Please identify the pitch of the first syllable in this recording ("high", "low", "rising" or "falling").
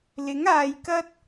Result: rising